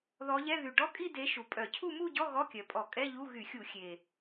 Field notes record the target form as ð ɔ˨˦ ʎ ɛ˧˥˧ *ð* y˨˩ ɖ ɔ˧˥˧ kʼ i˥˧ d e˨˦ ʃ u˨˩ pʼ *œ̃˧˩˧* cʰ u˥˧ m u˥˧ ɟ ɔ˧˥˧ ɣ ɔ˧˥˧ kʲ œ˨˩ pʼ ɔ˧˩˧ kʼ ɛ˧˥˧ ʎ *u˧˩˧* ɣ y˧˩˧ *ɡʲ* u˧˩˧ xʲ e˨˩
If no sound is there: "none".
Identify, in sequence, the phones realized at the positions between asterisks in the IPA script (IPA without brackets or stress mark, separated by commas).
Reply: ð, œ˧˩˧, u˧˥˧, xʲ